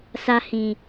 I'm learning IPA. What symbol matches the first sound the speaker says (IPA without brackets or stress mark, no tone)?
s